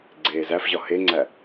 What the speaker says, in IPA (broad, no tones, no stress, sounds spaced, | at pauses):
ɡ͡ǀ eː z æ f ʑ ɒ h e ŋ͡ǀ æ